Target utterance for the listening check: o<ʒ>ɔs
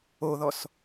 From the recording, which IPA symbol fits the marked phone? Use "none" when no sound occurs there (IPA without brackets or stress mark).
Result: ð